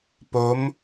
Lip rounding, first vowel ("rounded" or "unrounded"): rounded